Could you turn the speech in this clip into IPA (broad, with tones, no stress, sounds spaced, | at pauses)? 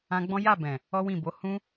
ã˧ ɡ͡b ɔ̃˦ j a˦˨ b ɛ̃˨ | ɔ˦ w ĩ˦˨ b o˨˦ h ũ˦